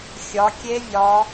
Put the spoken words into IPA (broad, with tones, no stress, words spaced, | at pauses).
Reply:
xʲɒ˨˦kʲe˦˥vʲɒ˨˦